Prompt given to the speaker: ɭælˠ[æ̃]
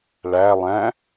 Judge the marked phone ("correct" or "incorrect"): correct